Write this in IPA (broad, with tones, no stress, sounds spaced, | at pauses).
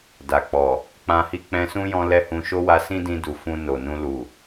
d a˨ k͡p ɔ˨ | k͡p ã˧ h i˦ k͡p ɛ̃˧ s ũ˦ j ɔ̃˧ l ɛ˦ h ũ˧ ʃ o˦ w a˧ s ĩ˦ d ĩ˧ d u˨ f ũ˧ n o˨ n ũ˧ l u˨